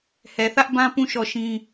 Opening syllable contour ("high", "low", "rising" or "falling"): low